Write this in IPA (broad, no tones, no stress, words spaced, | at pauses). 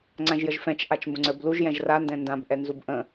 ŋ͡ǀãʒjəʒfɛ̃t͡ʃ ʔat͡ʃmbə̃ŋ͡ǀə˞bluʒ jɛ̃ʒra ndɛ̃ndãb ʔɛnzubʔə̃